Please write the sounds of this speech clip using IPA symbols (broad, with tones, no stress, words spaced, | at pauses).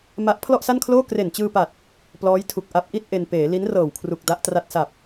ma˦˥ʔ pʰlɔ˥˩ʔsa˥˩nkʰloː˥˩ kre˨˩nt͡ɕɯː˧pa˨˩t̚ | plɔː˦˥jtʰu˨˩k̚ ʔa˦˥p̚ʔi˥˩t̚ ʔe˧n peː˩˦li˦˥n rɤː˨˩w kʰru˨˩k̚ da˦˥ʔtra˦˥t̚sa˨˩p̚